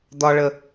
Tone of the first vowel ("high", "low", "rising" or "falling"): high